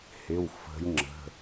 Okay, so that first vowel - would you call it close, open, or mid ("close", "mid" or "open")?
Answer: close